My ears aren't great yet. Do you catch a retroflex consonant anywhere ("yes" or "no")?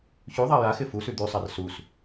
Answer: no